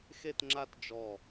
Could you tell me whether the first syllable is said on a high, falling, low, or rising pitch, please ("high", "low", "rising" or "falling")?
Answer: falling